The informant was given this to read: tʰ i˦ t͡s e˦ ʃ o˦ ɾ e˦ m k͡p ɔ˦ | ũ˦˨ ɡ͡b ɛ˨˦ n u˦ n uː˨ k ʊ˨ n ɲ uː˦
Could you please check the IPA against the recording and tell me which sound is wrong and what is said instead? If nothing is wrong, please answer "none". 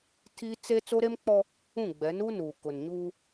ʃ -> t͡s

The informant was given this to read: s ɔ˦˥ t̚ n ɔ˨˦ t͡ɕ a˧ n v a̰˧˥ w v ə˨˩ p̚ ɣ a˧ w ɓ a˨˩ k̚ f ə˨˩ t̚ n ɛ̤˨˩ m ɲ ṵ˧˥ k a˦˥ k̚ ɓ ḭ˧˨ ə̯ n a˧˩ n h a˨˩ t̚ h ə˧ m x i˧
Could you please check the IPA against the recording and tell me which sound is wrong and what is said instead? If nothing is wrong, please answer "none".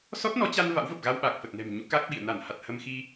none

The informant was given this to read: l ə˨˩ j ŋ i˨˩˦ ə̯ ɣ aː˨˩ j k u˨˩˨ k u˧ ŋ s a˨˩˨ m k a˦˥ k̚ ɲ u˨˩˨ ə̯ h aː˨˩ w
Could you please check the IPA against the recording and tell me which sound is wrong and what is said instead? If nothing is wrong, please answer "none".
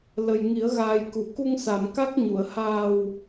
none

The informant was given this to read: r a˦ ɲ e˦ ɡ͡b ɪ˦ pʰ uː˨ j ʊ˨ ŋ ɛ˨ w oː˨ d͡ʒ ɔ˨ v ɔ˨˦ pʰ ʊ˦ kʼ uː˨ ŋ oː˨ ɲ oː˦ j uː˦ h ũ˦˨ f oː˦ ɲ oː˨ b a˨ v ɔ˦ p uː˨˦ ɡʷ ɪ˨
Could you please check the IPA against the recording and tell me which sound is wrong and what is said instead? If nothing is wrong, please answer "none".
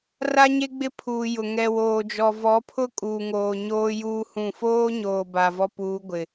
none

